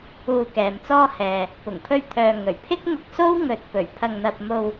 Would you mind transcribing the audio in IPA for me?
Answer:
uː˧ k ɛː˨ m t͡s ɔː˥ h ɛː˨ | p ʊ˨˩ ŋ pʰ ɵ˧ ɥ t̪ʰ œː˨ ŋ ɵ˨˩ ɥ pʰ ɪ˥ k̚ ŋ ʊ˧ k̚ s o˥ w ŋ ɵ˧ t̚ p ɵ˨˩ ɥ pʰ ɐ˧ ŋ n̪ ɐ˧ p̚ m o˧ w

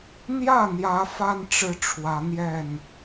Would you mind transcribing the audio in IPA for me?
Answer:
n̪ j ä˥˨ n̪ j ä˨˦ f a˦ n ʈ͡ʂ ɻ̩˦ ʈ͡ʂʰ w ä˨˦ n̪ j ɛ˥˨ n

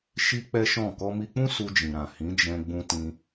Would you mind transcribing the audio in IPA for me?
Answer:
ʃ i˦ k͡p ɛ˦ ʃ ɔ̃˦˨ k ɔ˧ m i˧ k͡p ũ˦ s u˧ d͡ʒ ĩ˨ ɾ ã˨ h ĩ˨˦ d͡ʒ ɛ̃˧ ɡ͡b ũ˧ t ĩ˧

